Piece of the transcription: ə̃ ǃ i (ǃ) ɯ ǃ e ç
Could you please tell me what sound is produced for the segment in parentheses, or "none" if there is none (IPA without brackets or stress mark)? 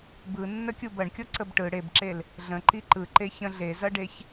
ǃ